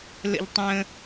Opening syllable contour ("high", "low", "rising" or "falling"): low